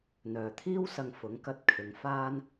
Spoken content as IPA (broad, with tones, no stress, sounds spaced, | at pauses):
n̪ œː˨ t̪ʰ iː˥ w s ɐ˧ ŋ f ʊ˨˥ ŋ k ɐ˧ t̚ kʰ ɪ˨˧ ŋ f aː˥ n